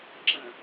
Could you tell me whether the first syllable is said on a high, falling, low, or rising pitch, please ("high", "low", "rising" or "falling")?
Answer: low